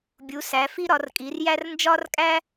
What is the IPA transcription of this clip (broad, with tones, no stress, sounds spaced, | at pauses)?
bʲ u˩˥ s æ˩˥ f i˥ ɾ ɒ˩˥ r kʼ i˩˥ r j æ˥ r n d͡ʒ ɒ˥ r kʼ æ˥